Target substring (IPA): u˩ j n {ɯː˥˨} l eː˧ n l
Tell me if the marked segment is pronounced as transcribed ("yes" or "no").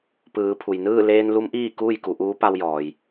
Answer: yes